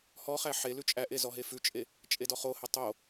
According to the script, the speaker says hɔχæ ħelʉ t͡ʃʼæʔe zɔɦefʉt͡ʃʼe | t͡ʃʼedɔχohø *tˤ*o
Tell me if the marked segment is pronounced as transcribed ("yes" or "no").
yes